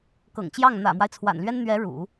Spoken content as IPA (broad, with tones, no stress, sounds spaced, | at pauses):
k ɤ̰˨˩ ŋ t͡ɕ j ɑ˥˩ ŋ n̪ ä̰˨˩ m w a˦ ɪ̯ t͡sʰ w a̰˨˩ n l ɥ ɛ˥ n n̪ ɥ ɛ˧˥ ɻ ṵ˨˩˦